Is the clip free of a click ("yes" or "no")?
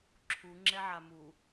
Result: no